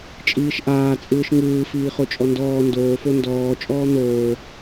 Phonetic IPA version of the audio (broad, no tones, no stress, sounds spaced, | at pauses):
t͡ʃʼ iː ʃ ʔ aː t͡sʼ ɯː ʃ ŋ ɯː f iː χ o t͡ʃʼ ɔ n d ɔː n d oː f o n d ɔː t͡ʃʼ ɔː n̪ oː